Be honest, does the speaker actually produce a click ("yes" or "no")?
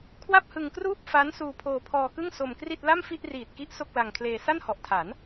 no